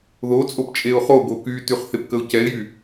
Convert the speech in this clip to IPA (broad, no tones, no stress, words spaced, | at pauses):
ðot͡sʼop t͡ʃʼeʊ̯χoɡo kytyχ θepkəʊ̯cɛɪ̯jy